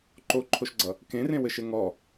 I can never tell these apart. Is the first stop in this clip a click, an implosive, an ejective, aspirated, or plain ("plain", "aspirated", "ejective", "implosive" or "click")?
click